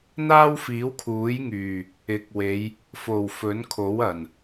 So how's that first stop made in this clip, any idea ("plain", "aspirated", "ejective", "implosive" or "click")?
aspirated